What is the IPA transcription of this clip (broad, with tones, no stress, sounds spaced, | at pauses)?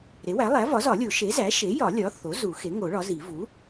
ɾ e˩˥ w æ˩˥ lˠ æ˩˥ v ɒ˩˥ z ɒ˨˩˦ lʲ o˨˩˦ ʃ e˩˥ z æ˩˥ ʃ e˩˥ j ɒ˨˩˦ lʲ ɒ˩˥ θ o˩˥ z u˨˩˦ x e˩˥ ŋ o˨˩˦ ɭ ɒ˩˥ z i˨˩˦ v u˩˥